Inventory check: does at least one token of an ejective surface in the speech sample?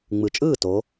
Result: yes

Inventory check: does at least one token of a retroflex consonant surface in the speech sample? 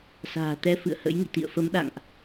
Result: no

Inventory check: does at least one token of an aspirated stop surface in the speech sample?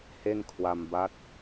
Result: yes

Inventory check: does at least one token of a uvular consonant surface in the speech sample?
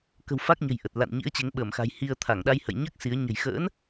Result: no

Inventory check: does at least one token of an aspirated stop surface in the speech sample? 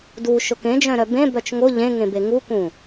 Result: no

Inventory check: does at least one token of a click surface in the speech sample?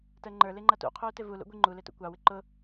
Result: yes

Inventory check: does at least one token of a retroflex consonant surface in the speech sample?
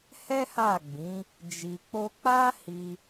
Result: no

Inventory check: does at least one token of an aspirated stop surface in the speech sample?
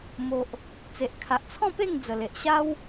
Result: yes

